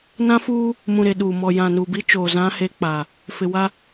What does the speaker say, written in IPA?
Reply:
n ã˦ f uː˦ | m ũ˨ ɾ e˨ ɗ uː˨ m ɔ˨ j ã˨ n u˨ b i˦ t͡ʃ oː˨ z ã˦ h e˦ k͡p a˨ | f ɪ˨ w a˦

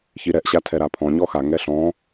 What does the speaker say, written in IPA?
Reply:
ç i ɾ ɛ ʔ ɕ a tʰ ɛ ɾ a pʰ ɔ̃ ɲ ɔ x a ŋ ɛ ɬ ɔ̃

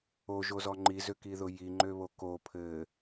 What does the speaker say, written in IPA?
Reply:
o ʒ o z ɔ ŋ͡ǃ i z ø k i ð ʊ j i ŋ͡ǃ ø β o k o pʰ ɘ

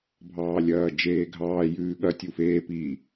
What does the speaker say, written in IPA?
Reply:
bʱ ɑː lʲ ɐː d͡ʒ eː ɡʱ ɑː j ʉː ɠ ɐ tʲ u f eː p i

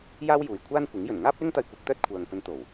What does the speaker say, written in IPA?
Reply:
j aː˥ w j uː˨ j kʷʰ aː˥ n kʷ ɪ˨˥ ŋ j ɵ˨˩ n ŋ aː˥ p̚ l ɪ˥ ŋ t̪ ɐ˧ j kʷ ɐ˨˥ k̚ t̪ œː˥ t̚ kʷʰ œː˨ ŋ p ɵ˧ n t̪ o˨˩ w

